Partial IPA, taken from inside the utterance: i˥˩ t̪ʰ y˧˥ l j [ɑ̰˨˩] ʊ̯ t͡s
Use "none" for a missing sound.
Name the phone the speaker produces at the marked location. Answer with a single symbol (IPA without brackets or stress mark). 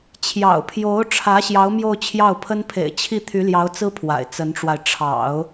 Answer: ɑ˧˥